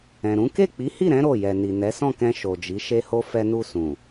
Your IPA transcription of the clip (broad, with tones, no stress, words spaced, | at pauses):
ɛ̃˨ɾũ˨˦ ke˦˨k͡pi˨˦hi˦˨ɾɛ̃˨˦ ɾo˦˨jɛ˨ni˨ nɛ˨˦sɔ̃˦˨kɛ̃˧ ʃo˨d͡ʒi˨˦ ʃe˧ho˧ fɛ˧ nu˧sũ˨